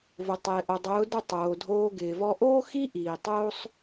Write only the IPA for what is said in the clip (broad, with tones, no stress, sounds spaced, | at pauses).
v ʊ˨ tˤ ɪː˨ ʔ o˨ dˤ ʊː˨˦ d ʊ˦˨ tˤ oː˨ dʱ oː˧ ɡ ɪː˨ v ɔ˦ ʔ oː˦ x i˦ ʔ iː˨ tˤ oː˦ sˤ